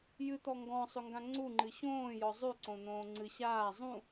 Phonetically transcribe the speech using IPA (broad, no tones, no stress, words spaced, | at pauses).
jɨt̪ɔ ŋɡɔ̃sˤʏŋɡã ŋ͡ǀuŋ͡ǃɨ ɕõːjɔ zˤʉǀõn̪õː ŋ͡ǀɨ ɕaː zˤũ